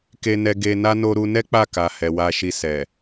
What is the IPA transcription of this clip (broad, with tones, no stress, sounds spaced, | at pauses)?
k e˧ n ɛ˧ ɡ e˧ n a˦ n o˧ ɾ u˧ n ɛ˦ k͡p a˦˨ k a˨ h ɛ˨ w a˧ ʃ i˧ s ɛ˨